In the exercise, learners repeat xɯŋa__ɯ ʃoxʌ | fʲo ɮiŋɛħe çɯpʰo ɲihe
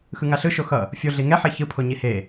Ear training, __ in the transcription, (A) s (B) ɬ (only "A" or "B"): B